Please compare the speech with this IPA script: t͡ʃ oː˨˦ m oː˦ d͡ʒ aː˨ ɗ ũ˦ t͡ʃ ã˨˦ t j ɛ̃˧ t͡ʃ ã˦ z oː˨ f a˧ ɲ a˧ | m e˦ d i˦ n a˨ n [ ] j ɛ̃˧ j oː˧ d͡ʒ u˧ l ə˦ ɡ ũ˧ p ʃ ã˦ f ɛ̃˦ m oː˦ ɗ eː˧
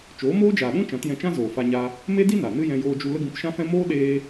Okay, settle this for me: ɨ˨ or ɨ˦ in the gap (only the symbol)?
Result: ɨ˦